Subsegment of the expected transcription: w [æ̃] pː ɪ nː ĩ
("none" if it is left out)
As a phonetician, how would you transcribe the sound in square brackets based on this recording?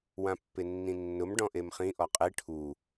ã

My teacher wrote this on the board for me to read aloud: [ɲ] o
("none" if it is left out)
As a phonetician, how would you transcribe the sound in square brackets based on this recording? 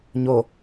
ɲ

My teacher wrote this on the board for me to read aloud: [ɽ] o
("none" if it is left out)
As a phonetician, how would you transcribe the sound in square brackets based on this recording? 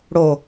ɽ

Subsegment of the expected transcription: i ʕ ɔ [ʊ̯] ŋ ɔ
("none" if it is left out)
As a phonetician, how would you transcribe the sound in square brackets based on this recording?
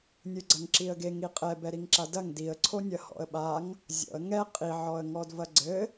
ə̯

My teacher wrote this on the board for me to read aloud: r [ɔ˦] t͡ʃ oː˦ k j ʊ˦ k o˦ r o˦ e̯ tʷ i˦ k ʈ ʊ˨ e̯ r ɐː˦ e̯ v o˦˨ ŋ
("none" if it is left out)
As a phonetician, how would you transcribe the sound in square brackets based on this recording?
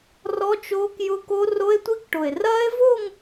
ɔ˦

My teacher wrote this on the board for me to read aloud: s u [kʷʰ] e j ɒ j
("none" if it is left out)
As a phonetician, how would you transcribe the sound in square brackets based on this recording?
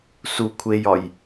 kʷʰ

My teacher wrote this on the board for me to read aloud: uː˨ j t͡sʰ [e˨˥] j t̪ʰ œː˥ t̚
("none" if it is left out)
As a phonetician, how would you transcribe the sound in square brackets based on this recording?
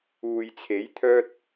e˨˥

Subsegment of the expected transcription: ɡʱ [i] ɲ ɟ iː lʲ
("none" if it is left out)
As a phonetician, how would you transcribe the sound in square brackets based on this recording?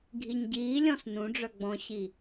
i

